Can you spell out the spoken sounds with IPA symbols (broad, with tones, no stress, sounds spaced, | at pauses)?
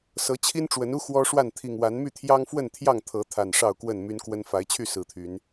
s ɤ˨˦ t͡ɕʰ i˦ n ʈ͡ʂ w ə˨˦ n u˦ x w ɔ˦ ʂ w a˥˨ n t̪ʰ i˨˩ ŋ w a˨˦ n m y˥˨ t̪ʰ j ɑ˦ ŋ f w ə˥˨ n t̪ʰ j ɑ˥˨ ŋ t̪ʰ ɤ˨˦ t̪ʰ a˨˩ n ʂ ɑ˥˨ ʊ̯ k w ə˥˨ n m y˦ n k w ə˦ n f a˨˦ ɪ̯ t͡ɕʰ y˥˨ s ɹ̩˨˩ t̪ʰ y˨˦ n